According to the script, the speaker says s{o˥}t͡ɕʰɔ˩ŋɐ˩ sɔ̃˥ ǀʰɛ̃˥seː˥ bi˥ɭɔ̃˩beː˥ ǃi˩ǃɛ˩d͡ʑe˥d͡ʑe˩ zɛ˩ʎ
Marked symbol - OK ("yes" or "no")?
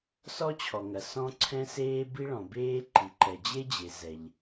no